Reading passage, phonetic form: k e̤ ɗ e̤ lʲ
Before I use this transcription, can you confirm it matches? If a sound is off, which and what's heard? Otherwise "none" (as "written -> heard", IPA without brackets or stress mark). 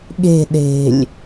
k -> ɠ